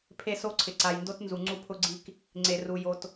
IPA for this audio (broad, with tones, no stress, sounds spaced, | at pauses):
pʰ e˦ s o˦ ǀʰ ɪ˨ ǀ a˨ j n d o˦ t n z u˨ ŋ͡ǀ u˦ pʰ ʊ˦ ɡ͡ǀ i˦ k | ŋ͡ǀ e˨ r u˨ j o˨ t